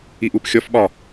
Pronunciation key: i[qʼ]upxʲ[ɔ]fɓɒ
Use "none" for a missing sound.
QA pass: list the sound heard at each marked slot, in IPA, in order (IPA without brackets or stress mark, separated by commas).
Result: ʔ, ɔ